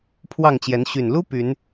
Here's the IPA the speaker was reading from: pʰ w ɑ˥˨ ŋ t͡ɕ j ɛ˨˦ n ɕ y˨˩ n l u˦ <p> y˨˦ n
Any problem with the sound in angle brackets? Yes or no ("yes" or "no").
no